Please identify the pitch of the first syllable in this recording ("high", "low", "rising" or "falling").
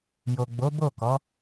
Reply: low